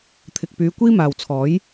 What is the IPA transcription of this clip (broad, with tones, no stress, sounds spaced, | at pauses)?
t̪ʰ ɪ˨ k̚ p yː˨˧ kʷ iː˥ m aː˨ w t͡sʰ ɔː˨˥ j